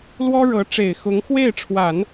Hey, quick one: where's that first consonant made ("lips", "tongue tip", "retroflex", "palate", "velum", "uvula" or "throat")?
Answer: tongue tip